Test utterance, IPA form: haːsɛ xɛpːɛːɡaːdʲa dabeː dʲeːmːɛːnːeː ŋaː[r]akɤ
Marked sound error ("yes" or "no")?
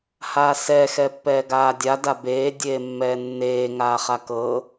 yes